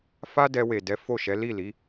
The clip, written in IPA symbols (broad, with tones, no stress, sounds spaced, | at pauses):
f a˦ d ɛ˧ w e˨ d ɛ˨˦ f o˦˨ ʃ ɛ˨˦ l i˦˨ l i˨˦